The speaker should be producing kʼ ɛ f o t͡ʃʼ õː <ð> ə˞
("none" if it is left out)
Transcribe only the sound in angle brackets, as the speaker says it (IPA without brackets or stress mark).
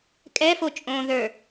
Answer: ð